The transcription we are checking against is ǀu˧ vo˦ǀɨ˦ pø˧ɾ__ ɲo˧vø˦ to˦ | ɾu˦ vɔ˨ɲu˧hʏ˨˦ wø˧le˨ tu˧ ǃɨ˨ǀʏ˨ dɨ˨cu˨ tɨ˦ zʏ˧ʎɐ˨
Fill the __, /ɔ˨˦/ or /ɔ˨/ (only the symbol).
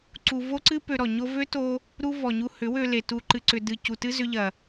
ɔ˨